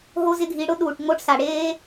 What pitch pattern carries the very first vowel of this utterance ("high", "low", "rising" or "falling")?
high